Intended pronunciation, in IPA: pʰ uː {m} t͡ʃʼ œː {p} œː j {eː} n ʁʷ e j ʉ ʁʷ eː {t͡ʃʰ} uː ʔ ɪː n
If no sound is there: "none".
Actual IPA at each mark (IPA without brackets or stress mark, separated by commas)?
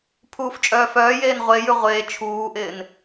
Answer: f, f, eː, t͡ʃʰ